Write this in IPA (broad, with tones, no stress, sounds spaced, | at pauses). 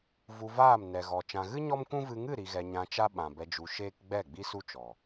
v u˧ v aː˦˨ m n ɛ˨ ɣ ɔ˨ t͡ʃ ã˨ ɣ ɨ˦ ɲ ɔ˦ m kʷ ũ˦ v ɨ˧ ŋ ɨ˦˨ ɾ i˧ ɣ ɛ˧ ɲ ã˧ t͡ʃ a˦ ɓ ã˨ b ɛ˧ d͡ʒ u˧ ʃ eː˦ k ɡ͡b ɛ˦˨ ɡ͡b i˦ s u˦ t͡ʃ ɔ˨